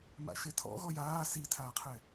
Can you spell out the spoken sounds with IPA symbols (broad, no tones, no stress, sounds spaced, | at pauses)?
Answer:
m a̰ ʃ e tʰ ɔ̰ ɣ ɔ j aː s i tʰ aː qʰ ɛ